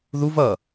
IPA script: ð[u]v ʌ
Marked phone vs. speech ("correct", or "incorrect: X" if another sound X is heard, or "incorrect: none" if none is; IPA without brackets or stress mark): correct